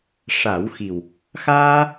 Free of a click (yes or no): yes